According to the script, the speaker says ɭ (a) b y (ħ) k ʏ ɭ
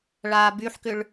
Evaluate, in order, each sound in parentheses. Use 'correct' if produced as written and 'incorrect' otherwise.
incorrect, correct

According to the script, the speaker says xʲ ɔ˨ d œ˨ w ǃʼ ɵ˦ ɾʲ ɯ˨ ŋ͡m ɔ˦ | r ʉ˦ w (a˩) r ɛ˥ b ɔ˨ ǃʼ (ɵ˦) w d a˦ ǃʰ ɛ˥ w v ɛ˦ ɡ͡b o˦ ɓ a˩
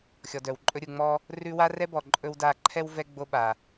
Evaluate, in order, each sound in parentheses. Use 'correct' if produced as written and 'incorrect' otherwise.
incorrect, incorrect

